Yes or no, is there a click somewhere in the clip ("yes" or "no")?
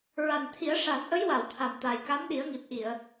no